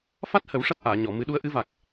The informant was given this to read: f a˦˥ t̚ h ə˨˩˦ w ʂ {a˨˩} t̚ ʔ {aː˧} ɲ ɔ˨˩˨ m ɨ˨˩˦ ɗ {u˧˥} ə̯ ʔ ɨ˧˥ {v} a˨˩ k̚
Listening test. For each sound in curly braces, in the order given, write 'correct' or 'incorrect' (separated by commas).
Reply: incorrect, incorrect, correct, correct